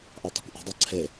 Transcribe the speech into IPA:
ʔ ɑ tˤ ṳ kʷ ʔ ṳ dˤ ɑ ǀʰ e

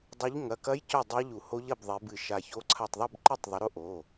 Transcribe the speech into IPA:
dˤ u˨˦ ʎ ŋ ɐ˩˧˩ k ɐ˦˥ j c ɵ˥˨ dˤ a˦˥ ʎ u˨˩˦ h o˦˥ ʎ ɐ˥˨ b ðˤ e˨˦ b ɨ˧˩ ʃ a˧˩ ç o˦˥ ǀʰ a˧˩ tˤ ðˤ u˥˨ b ǃ e˥˨ tˤ ðˤ ɨ˨˦ ɾ o˦˥ ʔ o˩˧˩

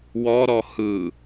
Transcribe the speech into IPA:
w ɔ ɾ ɔ h ɯ

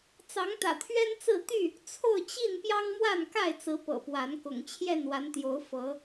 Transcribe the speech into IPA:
t͡s ɑ˨˦ ŋ t̪ ä̰˨˩ t̪ʰ ɥ ɛ˦ n t͡s ɹ̩˥˨ t̪ y˥˨ | t͡sʰ o˥˨ ʊ̯ t͡ɕ i˥˨ n p j ɑ˦ ŋ m w a˥˨ n k a˥˨ ɪ̯ t͡s ɹ̩˨˦ p ɤ̰˨˩ p w a˨˦ n k ʊ̰˨˩ ŋ t͡ɕʰ j ɛ˥˨ n w a˨˦ n t̪ j o˨˦ ʊ̯ f ɤ˨˦

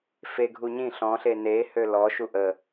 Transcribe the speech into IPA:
f e ɡʱ u ɲ ĩ ɬ ɔ̃ ɬ e n e h ø l ɔ ʃ u ʔ ə

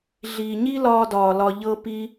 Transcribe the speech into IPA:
ɮ iː˨ ɲ i˦ l ɒː˧ d ɒː˨ l ɒ˧ ʎ ɤ˦ p i˦

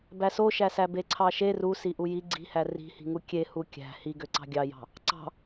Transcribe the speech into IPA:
b æ s o ʃ æ s æ b e ǀʰ ɑ ʃ e r u s i ʔ u j i ɡ͡ǀ i̤ h æ r i̤ h i̤ ŋ u kʲ e h u kʲ æ̤ h i ɡ ø ǀ ɑ̤ ɡʲ ɑ j ɑ̤ | ǀ ɑ̤

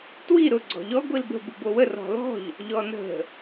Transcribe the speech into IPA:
t w i ɾ ʊ ɡ͡ǀ ɔ̤ ʎ ɔ ɡʷ i l b ə̤ b u b o w ə r ɔ̤ l ɔ̤ ʎ | ʎ ɔ n ə̤

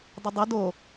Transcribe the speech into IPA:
dˤ ə dˤ ə d o

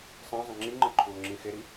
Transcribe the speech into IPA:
sˤ ẽ zˤ ə̃ ŋ͡ǁ i ŋ͡ǃ ə ǃʰ uː ŋ͡ǁ ĩ x e ɾ i

